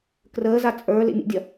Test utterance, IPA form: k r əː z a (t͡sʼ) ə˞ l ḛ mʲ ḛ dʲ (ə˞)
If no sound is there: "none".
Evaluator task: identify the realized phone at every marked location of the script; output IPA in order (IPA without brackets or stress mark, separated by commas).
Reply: t͡sʼ, ɐ